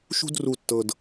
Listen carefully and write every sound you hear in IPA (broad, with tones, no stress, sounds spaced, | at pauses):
ʃ ṳ˧ d r u˨ tː ɤ˨ d